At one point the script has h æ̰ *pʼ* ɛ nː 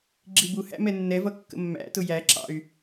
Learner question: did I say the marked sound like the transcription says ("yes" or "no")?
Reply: no